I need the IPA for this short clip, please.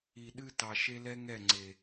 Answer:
i˨ɗɨ˦tɑ˨ ʃe˦lɛ˦ŋɛ˦˨ ŋ͡ǀe˨

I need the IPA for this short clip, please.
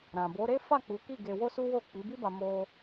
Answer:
ɾã˨bo˨˦ɾe˦ fa˦˨ k͡pu˨˦ki˦˨ ɡe˧wo˦su˦ wo˦˨k͡pi˨˦bi˦ba˧ mo˧

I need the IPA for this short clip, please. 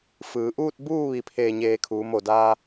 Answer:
fɯː˩˧ʔuː˥˨t̚ buː˥˨ ʋi˧˩pʰeː˧˩ɲeː˧˩ kʰuː˩˧mo˧˩daː˧

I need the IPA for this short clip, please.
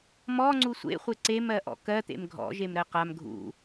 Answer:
mɔŋ͡ǀu sʷḛχʷe ǀemɜʔɔ̰ kɜt̪ḛm ɡʱɔ̰ʒemɾɜ qam ɡʱṵ

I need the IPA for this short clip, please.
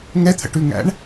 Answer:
ŋɛt̪ʰə̰ʈʉŋæ̰ɳ

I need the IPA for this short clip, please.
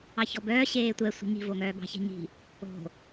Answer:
ɑçɔbœː ɕeːtʷɛ sʷi̤ɲi̤ voŋœːbɑ̤ çɛ̤ɲi̤ | o̤

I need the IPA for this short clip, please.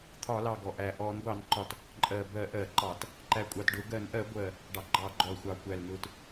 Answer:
t̪ʰɒ˧˩˧lɑ˨˩ ɡɔ˨˩ʔæ˨˩ ʔɔ˧˩˧n ɡʷɑ˧˩˧nǃɒ˨˩t | ǃʼɜ˨˩ bɜ˧˩˧ ʔɜ˧˩˧ǃɑ˧˩˧t | ǃæ˨˩kʷʼɑ˨˩tɖʊ˧˩˧ɡɜ˧˩˧n ʔɜ˧˩˧ ɡʷɜ˨˩ | ɖɑ˨˩ɡ͡ǃɑ˧˩˧ɡ͡ǃɔ˨˩lxʷɑ˨˩ kʷæ˨˩lnʊ˧˩˧t

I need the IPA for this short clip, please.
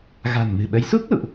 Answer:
ɣa̤˨˩nmɨ̤˨˩ɓə˨˦j su˦˥k̚ lṵ˧˨ʔ

